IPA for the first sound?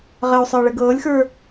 ʁ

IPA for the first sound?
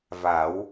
v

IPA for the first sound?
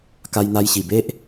k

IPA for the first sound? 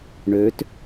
ɳ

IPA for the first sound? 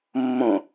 mː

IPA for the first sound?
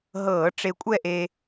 ɦ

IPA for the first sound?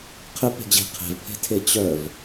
qʰ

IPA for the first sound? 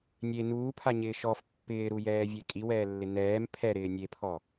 nʲ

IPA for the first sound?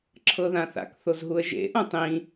ǁʰ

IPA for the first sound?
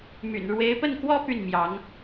m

